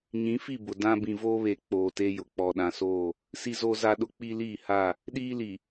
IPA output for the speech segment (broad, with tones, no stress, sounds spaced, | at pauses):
ɲ ĩ˨˦ f i˦˨ b ʊ˨ d ã˦ b ĩ˨ v oː˦ β e˨ k͡p oː˨ t e˦ j ʊ˨ k͡p ɔ˨ ɗ ã˨ s oː˦˨ | s i˦ z oː˦ z a˦ ɗ ʊ˦ k͡p i˦ l iː˦˨ h a˦˨ | ɗ iː˦ l i˨